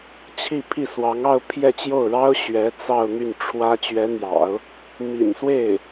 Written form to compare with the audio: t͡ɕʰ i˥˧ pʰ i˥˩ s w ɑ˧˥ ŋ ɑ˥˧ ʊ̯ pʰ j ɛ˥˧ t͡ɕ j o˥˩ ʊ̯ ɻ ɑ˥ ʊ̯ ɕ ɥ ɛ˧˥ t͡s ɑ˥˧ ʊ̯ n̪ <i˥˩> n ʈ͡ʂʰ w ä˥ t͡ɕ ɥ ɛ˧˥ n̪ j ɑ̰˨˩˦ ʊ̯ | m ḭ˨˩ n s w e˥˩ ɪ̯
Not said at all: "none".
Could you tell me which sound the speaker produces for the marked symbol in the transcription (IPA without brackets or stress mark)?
y˥˩